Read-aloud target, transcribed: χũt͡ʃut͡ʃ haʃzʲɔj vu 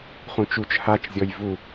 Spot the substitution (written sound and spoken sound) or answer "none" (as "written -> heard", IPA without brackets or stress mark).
ʃ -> t͡ʃ